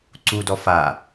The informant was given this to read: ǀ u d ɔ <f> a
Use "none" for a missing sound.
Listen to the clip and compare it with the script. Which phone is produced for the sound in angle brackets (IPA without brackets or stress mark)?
f